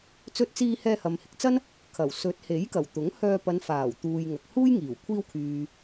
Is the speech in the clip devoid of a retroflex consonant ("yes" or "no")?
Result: yes